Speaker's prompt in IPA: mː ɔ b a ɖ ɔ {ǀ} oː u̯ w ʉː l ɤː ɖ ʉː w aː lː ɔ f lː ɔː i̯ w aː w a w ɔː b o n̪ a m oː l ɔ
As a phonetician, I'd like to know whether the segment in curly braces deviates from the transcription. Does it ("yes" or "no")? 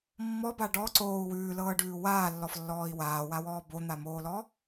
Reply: no